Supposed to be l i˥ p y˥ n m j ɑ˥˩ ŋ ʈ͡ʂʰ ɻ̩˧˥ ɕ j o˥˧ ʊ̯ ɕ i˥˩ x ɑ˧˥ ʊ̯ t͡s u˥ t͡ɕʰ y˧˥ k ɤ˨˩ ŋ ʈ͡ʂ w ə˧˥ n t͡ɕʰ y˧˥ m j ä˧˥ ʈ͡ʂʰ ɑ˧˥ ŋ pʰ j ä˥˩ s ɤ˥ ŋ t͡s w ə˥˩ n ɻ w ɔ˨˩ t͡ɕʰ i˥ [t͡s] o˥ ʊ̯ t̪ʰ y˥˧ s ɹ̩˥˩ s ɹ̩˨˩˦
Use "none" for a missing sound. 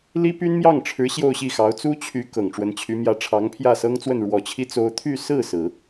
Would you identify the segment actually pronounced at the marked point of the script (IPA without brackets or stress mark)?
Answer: t͡s